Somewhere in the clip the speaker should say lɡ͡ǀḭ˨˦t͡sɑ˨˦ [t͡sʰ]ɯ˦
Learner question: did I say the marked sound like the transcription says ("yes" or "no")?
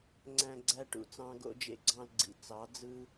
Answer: no